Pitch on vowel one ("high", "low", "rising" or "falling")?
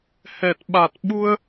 low